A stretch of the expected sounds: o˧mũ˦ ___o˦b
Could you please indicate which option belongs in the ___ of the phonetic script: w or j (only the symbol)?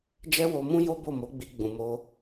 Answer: j